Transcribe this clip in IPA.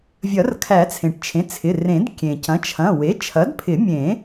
vʲ ɐ˨˩˦ r kʰ æ˨˩˦ t͡sʰ ẽ˩ ʈ t͡ʃʰ ẽ˩˧˩ t͡sʰ ɪ˩˧˩ r ẽ˨˩˦ d kʲ ẽ˩ c ɐ̃˩˥ t͡ʃʰ ɐ̃˩˧˩ w e˩˥ t͡ʃʰ ɐ˩˥ d pʰ ɪ˨˩˦ mʲ ẽ˨˩˦

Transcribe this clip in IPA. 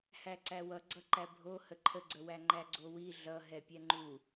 h æ ǀ æ w ʌ ɡ͡ǀ ʌ ǃ æ bʱ o h ə ǃʰ ə ɡ͡ǀ ə w æ ŋ͡ǃ æ ɡ͡ǀ o w i ɮ ʌ ɦ ɛ pʲ ɛ ŋ͡ǃ u

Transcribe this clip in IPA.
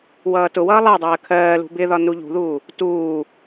w ʌː t ʊ w ʌː lˠ ɜ dˤ ɜː kʰ ɜː l ṳ b ɪ ð ɒ n u ʎ ṳ ð uː | t uː

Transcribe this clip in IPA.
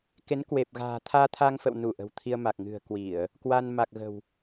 k e˨˦ n k w e˨˩ p̚ ɣ a̤ː˨˩ t̪ʰ aː˧ t̪ʰ a˧ ŋ f ə̰˧˨ w n u˧˩ ʔ ə̤˨˩ w t̪ʰ i˧ ə̯ m a˨˩ k̚ ŋ ɨ̤˨˩ ə̯ k w i˧˩˨ ə̯ | k w a˧ n m a˨˩ k̚ ɣ ə̤˨˩ w

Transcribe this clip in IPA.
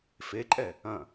f e ǃʼ ɛ | ɐ̃

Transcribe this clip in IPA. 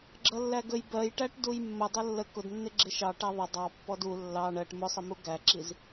ɡ͡ǁ ʌ lː æ ɡ ə j b ɜ j ʈ æ ʈ d u j mː ə dˤ ʌ lː ə k ʊ d nː ɪ ɡ͡ǁ ɪ ʃ ɑ ʈ æ ðˤ ə dˤ ɑ pː ɔ d u lː ɑ ɳ ɜ ʈ m ʊ sˤ ɪ m u ɡ æ ǁ i z

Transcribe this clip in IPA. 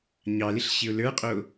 ɲ ɑ l ɪ ɬ ɕ ɪ ʊ̯ l ə˞ qʼ o

